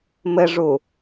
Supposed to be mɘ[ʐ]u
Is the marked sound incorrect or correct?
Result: correct